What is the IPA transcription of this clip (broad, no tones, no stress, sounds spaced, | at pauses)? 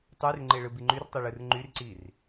tˤ y r ŋ͡ǃ e ɭ ɯ b i ŋ͡ǃ y r tˤ ɯ ɭ ɯ r ŋ͡ǃ y r ǀ i r